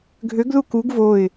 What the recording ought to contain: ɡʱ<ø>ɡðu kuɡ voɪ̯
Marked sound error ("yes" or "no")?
no